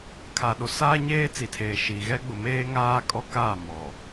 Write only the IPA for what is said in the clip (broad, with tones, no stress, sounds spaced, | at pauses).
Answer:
kʰ a˨ ɗ o˨ s aː˦ ɲ eː˦ t͡s i˨ tʰ eː˨ ʃ i˨ ɣ ɛ˦ ɡ͡b ʊ˨ m eː˦ ŋ aː˦ kʼ ɔ˦ k a˦˨ m ɔ˨